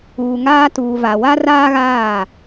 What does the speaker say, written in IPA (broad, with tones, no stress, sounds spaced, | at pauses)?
uː˨ ŋ aː˦ t uː˨ v a˨ w a˦ r aː˦ ɣ aː˦˨